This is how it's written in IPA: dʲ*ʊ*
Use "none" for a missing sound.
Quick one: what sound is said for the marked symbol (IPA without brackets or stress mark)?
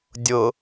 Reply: ʊ